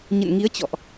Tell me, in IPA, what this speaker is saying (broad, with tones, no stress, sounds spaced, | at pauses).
ɲ ə̰˧˨ n ŋ i˨˦ ə̯ t͡ɕ ɔ̰˧˨ ʔ